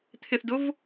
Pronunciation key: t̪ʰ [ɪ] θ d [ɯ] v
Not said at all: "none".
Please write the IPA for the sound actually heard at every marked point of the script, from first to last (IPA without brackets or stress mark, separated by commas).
ɪ, ʊ